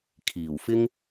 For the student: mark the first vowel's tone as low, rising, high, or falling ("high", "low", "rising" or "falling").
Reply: low